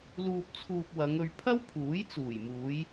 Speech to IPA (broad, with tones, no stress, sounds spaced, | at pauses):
l uː˧ p̚ t͡sʰ uː˧ p̚ w ɐ˨˧ ŋ ɵ˧ ɥ pʰ ɐ˥ w pʰ uː˨˥ j t͡s uː˨˩ j m uː˨˧ j